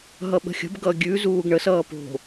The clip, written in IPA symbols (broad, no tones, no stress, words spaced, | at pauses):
ɦʌɓə̤xʲə̤b ɡʌɡʲʉ zuːɡɳəs ʌːpo̤